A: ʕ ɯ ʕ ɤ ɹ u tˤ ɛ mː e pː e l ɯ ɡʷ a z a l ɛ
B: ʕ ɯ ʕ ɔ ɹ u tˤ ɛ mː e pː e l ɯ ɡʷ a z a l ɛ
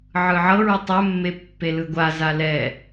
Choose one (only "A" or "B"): A